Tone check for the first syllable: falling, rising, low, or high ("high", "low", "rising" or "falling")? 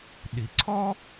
low